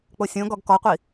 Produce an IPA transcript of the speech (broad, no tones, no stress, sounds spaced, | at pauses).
k͡p o sʲ õ ɡ ɔ ɡ k ɔ qʷ i